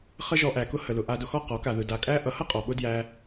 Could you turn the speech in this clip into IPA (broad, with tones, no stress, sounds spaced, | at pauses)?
χ ə˦ ʒ ɔ˧ ʔ æ˨ k ʊ˦ h ə˨ l ʊ˨ ʔ a˧ d ʊ˧ x ɔ˦˨ q ɔ˨˦ k a˨ ð ɯ˨ d a˨ kʼ æ˦ ʔ ʌ˨ h ʌ˦ qʼ ɔ˨ ɓ ʊ˦ d j æ˧